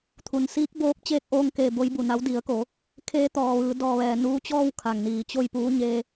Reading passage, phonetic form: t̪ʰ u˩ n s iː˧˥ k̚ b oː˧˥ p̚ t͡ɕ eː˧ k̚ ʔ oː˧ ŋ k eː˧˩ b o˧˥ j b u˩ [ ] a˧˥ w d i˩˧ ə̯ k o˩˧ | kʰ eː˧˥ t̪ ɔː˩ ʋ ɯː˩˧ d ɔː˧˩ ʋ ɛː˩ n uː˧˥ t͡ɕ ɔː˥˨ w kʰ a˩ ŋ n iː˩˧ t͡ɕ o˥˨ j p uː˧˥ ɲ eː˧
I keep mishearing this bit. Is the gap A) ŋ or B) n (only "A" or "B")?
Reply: B